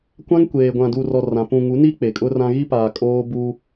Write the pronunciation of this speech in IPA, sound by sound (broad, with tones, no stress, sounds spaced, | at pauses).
kʷ ã˦ ŋ kʷ eː˨ ɡʷ ã˨ d u˨ r ɔ˨ r ã˨ p ũ˨ ŋ u˨˦ n i˦ k͡p e˨ kʼ ʊ˦ r ã˦ ɣ i˦ p aː˨ kʼ oː˦ b u˦